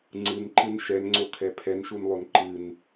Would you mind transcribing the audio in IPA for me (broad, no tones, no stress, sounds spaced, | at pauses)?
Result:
ŋ͡ǀ ɨ n ǃ ɨ n ʃ ɛ n ŋ͡ǀ o kʰ ɛ pʰ ɛ n ʃ u n lˠ o n ǃ ɨ n